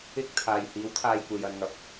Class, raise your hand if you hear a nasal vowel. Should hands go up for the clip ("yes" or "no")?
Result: no